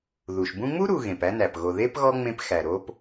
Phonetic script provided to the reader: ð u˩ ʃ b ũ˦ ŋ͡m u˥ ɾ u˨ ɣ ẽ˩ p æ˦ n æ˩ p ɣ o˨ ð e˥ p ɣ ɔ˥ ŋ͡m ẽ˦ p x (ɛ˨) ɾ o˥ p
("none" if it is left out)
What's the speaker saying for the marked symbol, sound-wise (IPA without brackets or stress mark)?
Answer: æ˨